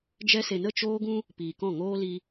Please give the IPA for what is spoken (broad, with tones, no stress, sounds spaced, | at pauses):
d͡ʒ ɛ˧ s e˨ n ə˦˨ t͡ʃ oː˦ ɡ ũ˦ | p iː˨ k ɔ̃˦˨ ŋ oː˦ l i˧